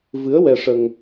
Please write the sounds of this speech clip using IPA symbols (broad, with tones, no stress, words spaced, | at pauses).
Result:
vɨ˧˥ə̯wɛ˧ʂə˧ŋ